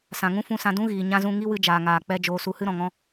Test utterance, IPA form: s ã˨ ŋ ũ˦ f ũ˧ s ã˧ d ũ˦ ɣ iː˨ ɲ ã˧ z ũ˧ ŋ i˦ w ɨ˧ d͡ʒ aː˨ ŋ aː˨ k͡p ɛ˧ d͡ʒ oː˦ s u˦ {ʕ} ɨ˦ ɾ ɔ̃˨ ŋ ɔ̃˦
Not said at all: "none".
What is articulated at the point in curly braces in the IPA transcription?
h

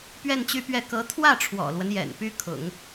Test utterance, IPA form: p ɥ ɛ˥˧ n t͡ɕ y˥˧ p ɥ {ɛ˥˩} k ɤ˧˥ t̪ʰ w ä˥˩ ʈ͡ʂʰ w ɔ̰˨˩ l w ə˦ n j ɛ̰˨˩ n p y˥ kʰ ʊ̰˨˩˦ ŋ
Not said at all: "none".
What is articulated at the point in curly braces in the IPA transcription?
ɛ˥˩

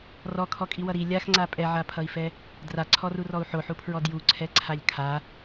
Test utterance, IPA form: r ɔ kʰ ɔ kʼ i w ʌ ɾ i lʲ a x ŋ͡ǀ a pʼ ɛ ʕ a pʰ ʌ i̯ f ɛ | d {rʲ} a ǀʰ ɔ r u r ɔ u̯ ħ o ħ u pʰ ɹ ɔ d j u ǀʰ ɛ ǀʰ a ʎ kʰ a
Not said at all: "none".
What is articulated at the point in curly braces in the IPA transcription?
r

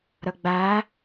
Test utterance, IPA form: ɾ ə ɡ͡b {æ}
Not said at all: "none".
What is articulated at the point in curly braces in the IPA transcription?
æ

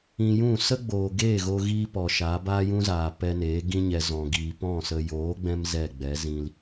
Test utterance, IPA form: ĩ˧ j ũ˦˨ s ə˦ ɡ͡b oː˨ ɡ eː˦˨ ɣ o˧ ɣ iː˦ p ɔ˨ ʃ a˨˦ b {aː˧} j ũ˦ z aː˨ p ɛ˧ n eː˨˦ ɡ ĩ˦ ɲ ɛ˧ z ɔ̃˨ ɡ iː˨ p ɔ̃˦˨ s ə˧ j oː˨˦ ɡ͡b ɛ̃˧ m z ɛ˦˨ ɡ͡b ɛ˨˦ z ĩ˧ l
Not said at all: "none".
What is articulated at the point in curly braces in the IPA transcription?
aː˦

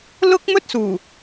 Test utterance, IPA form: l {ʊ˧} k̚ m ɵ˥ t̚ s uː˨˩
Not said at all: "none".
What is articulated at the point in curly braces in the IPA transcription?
ʊ˥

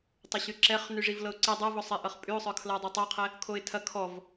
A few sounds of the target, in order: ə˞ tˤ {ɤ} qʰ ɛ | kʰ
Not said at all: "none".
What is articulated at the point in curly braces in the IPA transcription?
ɤ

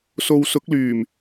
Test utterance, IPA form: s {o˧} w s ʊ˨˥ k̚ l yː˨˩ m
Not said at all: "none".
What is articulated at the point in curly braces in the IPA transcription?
o˧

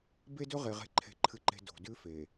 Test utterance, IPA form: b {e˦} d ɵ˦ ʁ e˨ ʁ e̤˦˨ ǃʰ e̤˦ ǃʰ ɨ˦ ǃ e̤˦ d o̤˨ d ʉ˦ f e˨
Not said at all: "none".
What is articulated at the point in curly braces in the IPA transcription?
e˦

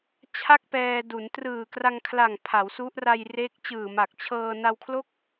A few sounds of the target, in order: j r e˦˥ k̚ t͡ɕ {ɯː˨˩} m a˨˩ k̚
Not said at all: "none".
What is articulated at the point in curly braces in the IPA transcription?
ɯː˨˩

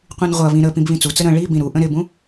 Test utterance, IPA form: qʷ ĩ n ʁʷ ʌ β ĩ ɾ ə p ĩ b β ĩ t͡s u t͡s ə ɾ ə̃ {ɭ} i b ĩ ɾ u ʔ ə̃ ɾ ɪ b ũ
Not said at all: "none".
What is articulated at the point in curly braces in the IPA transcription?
ɭ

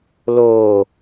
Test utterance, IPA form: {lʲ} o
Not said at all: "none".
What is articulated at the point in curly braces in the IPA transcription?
l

